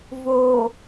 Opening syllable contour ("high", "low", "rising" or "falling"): low